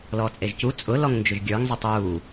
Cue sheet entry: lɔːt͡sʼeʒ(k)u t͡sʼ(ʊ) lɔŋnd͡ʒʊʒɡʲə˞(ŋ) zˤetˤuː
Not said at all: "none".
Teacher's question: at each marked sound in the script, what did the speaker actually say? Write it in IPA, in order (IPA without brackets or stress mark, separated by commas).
c, ʊ, ŋ